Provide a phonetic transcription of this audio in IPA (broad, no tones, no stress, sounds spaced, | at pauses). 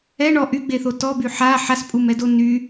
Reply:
ɛ ɳ ɔ ʔ y ɡ͡b e θ o t ɔ b y ħ a ħ a s pʼ u m ɛ d o n y